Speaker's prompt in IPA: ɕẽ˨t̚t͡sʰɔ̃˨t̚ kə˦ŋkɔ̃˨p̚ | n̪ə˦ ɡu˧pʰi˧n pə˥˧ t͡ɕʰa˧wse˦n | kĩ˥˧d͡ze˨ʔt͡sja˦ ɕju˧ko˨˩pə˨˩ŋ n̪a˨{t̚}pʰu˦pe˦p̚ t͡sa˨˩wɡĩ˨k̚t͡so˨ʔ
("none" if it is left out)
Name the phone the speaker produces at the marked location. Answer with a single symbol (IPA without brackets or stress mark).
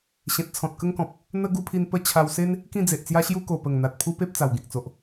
t̚